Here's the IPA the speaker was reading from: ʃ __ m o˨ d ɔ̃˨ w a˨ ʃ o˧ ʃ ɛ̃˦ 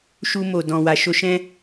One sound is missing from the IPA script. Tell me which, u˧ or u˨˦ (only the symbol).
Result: u˧